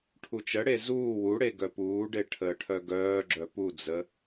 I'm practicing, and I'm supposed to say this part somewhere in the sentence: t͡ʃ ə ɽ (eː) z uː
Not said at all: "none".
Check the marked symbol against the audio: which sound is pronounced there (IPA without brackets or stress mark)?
e